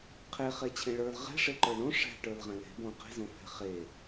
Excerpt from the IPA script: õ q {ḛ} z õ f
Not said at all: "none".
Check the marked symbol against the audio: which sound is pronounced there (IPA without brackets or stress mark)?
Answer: e̤